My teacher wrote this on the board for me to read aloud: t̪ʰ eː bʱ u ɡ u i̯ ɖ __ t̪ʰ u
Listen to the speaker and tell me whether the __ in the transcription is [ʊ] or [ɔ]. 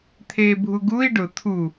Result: ʊ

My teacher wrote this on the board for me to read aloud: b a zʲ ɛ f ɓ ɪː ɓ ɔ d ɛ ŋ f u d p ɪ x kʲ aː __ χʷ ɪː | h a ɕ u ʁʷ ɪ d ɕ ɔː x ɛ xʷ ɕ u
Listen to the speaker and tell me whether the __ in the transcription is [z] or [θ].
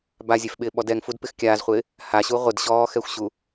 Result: z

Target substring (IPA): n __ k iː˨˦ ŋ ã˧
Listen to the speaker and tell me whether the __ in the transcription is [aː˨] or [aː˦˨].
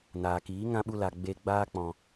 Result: aː˨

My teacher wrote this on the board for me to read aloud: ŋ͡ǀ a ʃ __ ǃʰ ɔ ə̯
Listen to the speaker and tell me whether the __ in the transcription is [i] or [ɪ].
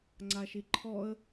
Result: i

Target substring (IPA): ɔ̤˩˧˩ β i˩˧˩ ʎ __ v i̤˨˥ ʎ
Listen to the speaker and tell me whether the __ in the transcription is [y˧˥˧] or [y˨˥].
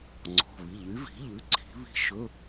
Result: y˨˥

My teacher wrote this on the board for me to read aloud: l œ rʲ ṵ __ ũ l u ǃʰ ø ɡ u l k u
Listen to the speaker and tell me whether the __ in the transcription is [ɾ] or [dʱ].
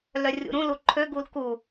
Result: ɾ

